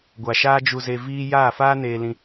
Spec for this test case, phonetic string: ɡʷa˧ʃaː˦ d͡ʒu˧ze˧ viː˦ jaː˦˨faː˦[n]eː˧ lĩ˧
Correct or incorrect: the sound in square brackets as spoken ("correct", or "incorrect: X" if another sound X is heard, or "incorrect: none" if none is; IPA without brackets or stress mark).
correct